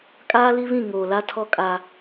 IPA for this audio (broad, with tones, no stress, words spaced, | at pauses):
kʼaː˦li˦βĩ˦˨ ŋoː˨la˦tʰɔ˦ kʼa˦